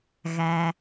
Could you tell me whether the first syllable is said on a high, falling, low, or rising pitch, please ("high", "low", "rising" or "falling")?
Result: low